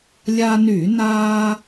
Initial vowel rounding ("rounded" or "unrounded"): unrounded